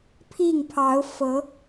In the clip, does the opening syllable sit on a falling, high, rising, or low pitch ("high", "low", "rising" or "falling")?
falling